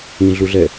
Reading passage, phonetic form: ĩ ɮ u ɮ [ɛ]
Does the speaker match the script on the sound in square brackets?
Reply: yes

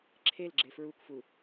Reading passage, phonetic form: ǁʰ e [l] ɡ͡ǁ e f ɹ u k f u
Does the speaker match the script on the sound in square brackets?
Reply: yes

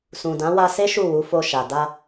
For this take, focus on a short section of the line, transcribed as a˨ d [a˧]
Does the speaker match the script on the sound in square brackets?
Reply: yes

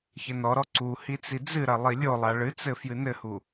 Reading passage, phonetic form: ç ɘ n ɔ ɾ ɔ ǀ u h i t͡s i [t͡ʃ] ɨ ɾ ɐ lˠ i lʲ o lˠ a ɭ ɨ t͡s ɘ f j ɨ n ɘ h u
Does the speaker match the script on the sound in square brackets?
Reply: no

